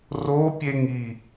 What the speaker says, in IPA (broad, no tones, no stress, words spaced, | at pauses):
ropʲeŋi